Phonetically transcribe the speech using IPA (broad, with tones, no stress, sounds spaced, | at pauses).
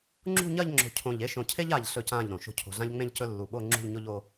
ŋ͡ǁ ṳ˥˧ ɲ ɐ˥˧ ʎ ŋ͡ǁ o̤˧˩ cʰ õ˧˩ ʎ e˥˧ ʃ õ˧ cʰ e˥ ʎ a˧˩ ʎ ɬ ɵ˧˩ c ã˧˩ ʎ ɾ õ˩˧ ʃ o̤˥ cʰ o̤˧ ɮ ã˥ ʎ ŋ͡m ẽ˥ ʎ c ɵ˥ lː u˧˩ ɓ o˥˧ ŋ͡ǁ ṳ˥˧ ʎ ɲ o˥ ʎ o˥